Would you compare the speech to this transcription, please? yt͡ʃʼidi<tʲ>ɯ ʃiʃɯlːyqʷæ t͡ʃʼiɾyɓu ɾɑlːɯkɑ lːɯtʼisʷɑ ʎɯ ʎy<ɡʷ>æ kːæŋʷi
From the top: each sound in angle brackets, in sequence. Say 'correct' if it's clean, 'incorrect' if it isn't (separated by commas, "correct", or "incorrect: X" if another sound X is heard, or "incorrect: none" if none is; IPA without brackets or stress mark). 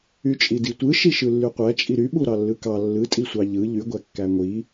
incorrect: tʷ, correct